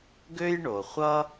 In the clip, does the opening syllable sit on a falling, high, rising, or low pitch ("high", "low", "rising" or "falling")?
high